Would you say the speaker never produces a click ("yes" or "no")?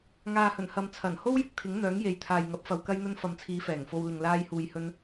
yes